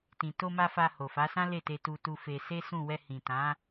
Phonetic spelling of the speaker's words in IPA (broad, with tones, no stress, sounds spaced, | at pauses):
t ĩ˨ t o˧ m a˧ f a˧ h o˨ f a˨˦ s ã˦ l e˦˨ t e˧ t u˧ t u˧ f e˧ s e˦ s ũ˦˨ w ɛ˧ h ĩ˨ t ã˨˦